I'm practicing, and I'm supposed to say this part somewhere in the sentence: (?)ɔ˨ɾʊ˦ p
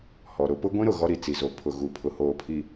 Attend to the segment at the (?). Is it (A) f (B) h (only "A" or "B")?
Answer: B